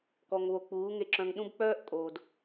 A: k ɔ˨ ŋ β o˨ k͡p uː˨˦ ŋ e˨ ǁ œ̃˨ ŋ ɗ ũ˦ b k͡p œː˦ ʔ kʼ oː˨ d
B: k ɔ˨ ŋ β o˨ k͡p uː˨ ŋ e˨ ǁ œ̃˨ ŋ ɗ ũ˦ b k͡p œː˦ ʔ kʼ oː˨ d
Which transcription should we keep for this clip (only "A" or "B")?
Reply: A